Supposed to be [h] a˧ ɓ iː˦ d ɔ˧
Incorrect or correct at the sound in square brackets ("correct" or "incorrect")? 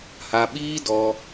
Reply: correct